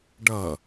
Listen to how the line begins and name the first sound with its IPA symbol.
ɖ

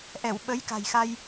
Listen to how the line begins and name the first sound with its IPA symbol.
ʔ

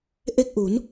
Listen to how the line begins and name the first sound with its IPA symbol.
ʔ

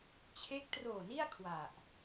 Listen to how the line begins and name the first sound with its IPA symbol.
t͡ɕʰ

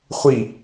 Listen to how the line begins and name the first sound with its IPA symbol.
χʷ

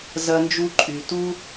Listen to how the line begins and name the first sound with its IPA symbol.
z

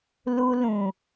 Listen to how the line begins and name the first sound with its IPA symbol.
l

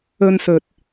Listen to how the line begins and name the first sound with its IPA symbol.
ɵ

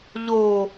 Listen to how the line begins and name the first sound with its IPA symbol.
ʎ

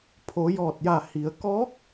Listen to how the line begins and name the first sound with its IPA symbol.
pʰ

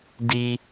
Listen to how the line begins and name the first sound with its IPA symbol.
d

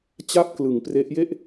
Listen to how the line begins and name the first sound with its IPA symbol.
t͡ɕ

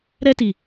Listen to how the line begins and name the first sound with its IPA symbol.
ɾ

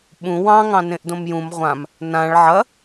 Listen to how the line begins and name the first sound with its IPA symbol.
ɓ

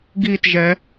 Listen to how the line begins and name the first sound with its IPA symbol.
ɡ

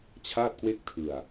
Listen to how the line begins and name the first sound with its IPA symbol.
t͡ɕʰ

